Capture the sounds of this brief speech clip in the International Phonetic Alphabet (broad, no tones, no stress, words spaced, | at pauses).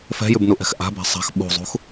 fɛ̤jʉbnuʔɛ̤x ʔa̤ba̤ sˤa̤x ɓṳzˤṳx